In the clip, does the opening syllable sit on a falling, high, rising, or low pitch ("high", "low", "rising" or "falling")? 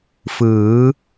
rising